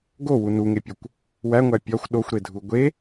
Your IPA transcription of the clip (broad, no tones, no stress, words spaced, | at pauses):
ɡowu nuŋepʲokʷ | wæŋʷæ pʲɒxʷ ɗoxʷɾedʱu ɡʷe